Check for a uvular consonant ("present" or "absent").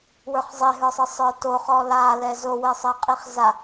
present